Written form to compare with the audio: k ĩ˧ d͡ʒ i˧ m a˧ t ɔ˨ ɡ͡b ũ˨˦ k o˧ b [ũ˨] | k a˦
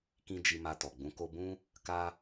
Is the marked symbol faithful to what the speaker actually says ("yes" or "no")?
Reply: no